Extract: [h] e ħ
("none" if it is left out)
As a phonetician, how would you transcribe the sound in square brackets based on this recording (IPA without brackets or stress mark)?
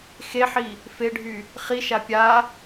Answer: x